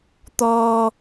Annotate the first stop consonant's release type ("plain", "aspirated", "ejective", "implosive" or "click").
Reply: plain